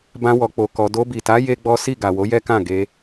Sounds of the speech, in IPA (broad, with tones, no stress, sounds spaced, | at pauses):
b ã˦ w ɔ˧ k͡p o˧ k ɔ˧ d o˧ b i˨ t a˨˦ j e˦ ɡ͡b ɔ˦ s i˦˨ ɡ a˨ w o˨˦ j ɛ˦ k ã˦˨ ɡ e˧